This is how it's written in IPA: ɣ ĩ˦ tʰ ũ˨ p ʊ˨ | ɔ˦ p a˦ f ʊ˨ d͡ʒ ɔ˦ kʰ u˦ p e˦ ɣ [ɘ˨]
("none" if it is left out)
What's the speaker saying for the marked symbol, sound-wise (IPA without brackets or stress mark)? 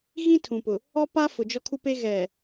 ɛ˨